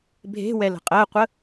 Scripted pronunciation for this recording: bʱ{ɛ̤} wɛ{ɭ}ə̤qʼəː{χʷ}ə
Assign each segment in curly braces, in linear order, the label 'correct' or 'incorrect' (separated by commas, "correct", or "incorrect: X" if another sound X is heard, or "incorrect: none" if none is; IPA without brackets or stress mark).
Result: incorrect: e̤, incorrect: l, incorrect: qʷ